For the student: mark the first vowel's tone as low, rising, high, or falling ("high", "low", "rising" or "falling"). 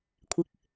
rising